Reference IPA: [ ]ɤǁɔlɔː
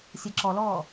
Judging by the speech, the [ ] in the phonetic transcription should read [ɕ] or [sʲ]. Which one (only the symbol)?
sʲ